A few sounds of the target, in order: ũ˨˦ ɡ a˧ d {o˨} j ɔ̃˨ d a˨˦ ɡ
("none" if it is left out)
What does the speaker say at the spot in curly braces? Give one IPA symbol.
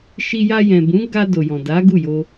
o˨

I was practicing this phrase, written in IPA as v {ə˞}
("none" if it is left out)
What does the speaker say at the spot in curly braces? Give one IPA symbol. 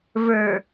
ə˞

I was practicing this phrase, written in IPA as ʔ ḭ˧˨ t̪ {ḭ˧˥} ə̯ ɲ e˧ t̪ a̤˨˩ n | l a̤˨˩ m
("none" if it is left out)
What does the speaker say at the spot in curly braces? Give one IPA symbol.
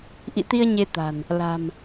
i˧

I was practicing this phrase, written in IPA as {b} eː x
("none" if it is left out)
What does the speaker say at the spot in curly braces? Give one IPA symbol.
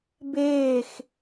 b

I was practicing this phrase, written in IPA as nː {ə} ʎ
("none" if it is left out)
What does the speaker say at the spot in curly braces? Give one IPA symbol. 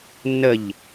ə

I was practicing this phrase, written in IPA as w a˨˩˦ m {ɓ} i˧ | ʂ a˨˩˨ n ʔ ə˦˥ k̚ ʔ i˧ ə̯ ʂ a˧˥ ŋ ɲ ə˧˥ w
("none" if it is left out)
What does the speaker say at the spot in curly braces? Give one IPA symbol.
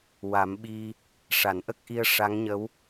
ɓ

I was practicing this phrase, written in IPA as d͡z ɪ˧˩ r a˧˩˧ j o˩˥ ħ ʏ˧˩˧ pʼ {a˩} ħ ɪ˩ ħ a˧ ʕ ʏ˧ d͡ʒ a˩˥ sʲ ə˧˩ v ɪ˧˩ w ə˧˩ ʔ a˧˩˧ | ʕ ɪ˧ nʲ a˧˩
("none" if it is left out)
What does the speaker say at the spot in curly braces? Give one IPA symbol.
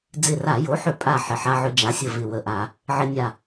a˧˩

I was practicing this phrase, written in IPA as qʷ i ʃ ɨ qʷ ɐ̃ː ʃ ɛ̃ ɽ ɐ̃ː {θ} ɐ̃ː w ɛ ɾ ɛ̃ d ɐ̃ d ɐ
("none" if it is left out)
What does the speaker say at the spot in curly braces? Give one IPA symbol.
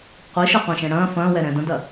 f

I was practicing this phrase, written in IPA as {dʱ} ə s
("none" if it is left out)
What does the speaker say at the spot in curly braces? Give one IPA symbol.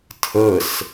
tʰ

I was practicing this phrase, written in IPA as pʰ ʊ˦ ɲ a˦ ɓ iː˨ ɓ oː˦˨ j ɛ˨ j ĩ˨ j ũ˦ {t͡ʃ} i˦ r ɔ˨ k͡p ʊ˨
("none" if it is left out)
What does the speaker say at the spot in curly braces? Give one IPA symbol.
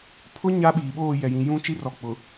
t͡ʃ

